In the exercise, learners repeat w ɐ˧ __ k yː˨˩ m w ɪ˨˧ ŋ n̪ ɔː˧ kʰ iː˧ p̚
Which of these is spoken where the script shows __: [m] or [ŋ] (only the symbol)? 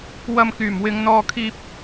m